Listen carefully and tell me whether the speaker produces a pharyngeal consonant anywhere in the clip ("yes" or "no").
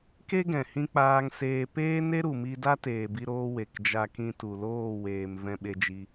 no